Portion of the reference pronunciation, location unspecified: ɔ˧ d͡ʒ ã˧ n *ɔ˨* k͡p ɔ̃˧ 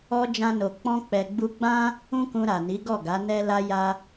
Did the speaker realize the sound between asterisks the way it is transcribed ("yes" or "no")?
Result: no